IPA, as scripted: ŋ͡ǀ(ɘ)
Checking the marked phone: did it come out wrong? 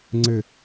no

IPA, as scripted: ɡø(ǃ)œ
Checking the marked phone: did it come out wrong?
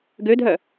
yes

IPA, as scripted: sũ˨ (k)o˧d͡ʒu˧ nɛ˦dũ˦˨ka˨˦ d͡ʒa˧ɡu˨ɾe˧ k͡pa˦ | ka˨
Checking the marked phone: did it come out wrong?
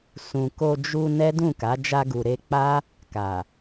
no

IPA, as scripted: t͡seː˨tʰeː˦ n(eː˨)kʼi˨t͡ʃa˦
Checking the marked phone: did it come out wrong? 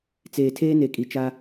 yes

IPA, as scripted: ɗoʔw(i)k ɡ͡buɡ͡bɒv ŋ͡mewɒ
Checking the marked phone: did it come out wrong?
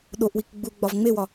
no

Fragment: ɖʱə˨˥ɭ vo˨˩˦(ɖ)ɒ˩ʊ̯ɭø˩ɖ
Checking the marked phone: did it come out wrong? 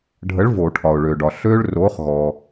yes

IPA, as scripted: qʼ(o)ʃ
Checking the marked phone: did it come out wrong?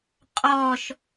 yes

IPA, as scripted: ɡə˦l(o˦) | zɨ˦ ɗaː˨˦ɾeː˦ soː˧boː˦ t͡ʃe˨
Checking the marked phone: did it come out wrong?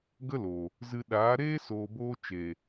yes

